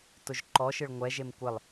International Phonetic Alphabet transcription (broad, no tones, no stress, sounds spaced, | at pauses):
t ʊ ʒ ǃ ɔ ʃ ɪ ɭ ŋʷ ɛ ʒ e m kʷ ɪ lˠ